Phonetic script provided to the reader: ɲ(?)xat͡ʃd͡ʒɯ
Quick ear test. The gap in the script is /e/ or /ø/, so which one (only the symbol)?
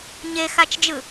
e